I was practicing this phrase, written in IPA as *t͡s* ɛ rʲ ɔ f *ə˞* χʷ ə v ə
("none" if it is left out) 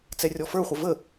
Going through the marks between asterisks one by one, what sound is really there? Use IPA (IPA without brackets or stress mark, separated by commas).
t͡s, ə˞